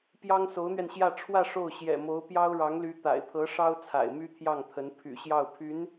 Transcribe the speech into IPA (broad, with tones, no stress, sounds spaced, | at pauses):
p j ɑ˥ ŋ s o˧˥ ʊ̯ n̪ ɥ ɛ˧ n ɕ j ä˥˧ ʈ͡ʂʰ w ä˥˧ ʂ o˥˩ ʊ̯ ɕ j ɛ̰˨˩ m o˧˥ ʊ̯ p j ɑ˥ ʊ̯ ɻ ɑ˧˥ ŋ l y˧˥ t̪ a̰˨˩ ɪ̯ pʰ ɤ˧˥ ʂ ɑ˥ ʊ̯ t͡sʰ a̰˨˩ ɪ̯ m y˥ t̪ʰ j ɑ˥˩ ŋ t̪ʰ ə˧˥ n pʰ y̰˨˩ ɕ j ɑ˥˩ ʊ̯ pʰ y˧˥ n